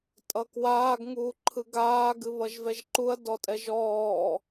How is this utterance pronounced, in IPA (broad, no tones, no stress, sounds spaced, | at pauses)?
tʼ ʌ k w aː ɡ ŋ uː ǃʰ ɯ ɡ aː ɡ ɨ β ʌ ʒ v ɛ ʒ ǃ u ɐ̯ d ɔ tʼ ɛ ʒ ɔː